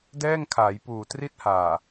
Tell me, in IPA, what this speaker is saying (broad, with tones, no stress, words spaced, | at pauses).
dɛː˥˩ŋkʰaː˩˦j puː˨˩tri˥˩t̚haː˨˩